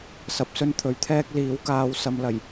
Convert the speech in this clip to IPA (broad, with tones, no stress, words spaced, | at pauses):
sɐ˧p̚ sɵ˥nt̪ʰɵ˨˥ɥt̪ʰɛː˥k̚ liː˨˥wkaː˨˧w sɐ˨˧mlɐ˨˩j